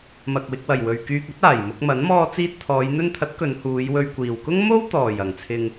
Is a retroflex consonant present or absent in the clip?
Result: absent